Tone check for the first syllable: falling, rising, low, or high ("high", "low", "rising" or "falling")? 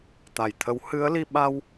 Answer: low